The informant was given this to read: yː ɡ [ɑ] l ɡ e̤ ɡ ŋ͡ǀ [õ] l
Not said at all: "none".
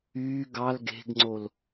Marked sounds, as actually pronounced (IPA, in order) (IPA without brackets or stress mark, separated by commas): ɑ, o